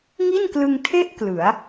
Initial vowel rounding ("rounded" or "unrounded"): unrounded